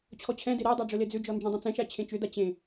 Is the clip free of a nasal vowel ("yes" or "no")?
no